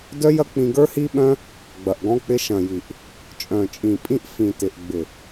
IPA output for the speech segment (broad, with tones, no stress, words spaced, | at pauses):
dœ˦jɐ˦k͡pĩ˧ɡə˞˦ hi˦ɓœ̃˦ | ɡ͡bɐ˨ʔɡɔ̃˧k͡pɪ˧ ʃɐ̃˨ji˨ʔ | t͡ʃʼœ̃˨t͡ʃʼĩ˨pʼĩ˧ʔ fĩ˨tɪ˨ʔ ɡ͡bɪ˨